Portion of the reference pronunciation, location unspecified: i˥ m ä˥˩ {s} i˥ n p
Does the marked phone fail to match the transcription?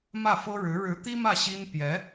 yes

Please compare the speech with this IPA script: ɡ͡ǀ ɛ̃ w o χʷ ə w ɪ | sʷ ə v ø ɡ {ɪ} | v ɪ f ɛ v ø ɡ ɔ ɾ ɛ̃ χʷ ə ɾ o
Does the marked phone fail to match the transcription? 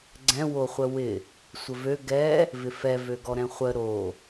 yes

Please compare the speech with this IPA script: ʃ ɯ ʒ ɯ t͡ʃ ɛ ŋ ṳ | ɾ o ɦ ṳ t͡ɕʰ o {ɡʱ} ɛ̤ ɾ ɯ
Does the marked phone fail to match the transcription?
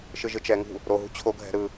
no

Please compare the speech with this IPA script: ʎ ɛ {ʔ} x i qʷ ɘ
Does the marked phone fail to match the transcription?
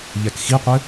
yes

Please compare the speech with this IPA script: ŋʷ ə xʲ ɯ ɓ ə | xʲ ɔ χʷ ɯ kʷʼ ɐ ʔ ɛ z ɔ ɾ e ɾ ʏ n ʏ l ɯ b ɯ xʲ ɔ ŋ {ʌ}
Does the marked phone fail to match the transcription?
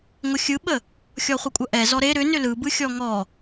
yes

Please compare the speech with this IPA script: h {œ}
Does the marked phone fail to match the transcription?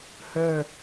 no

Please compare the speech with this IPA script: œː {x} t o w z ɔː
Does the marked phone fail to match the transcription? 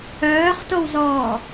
yes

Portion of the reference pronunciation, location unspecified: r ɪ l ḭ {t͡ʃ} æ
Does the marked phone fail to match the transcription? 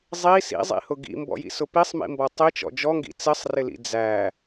yes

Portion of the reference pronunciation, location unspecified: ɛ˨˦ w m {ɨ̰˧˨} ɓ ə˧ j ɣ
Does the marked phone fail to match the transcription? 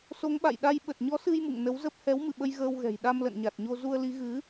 no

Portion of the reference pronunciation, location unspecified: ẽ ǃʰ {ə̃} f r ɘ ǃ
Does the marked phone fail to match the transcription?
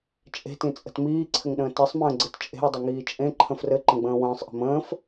no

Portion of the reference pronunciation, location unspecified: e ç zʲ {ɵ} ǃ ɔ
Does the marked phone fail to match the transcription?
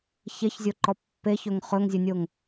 yes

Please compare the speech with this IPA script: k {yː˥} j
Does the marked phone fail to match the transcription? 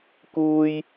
yes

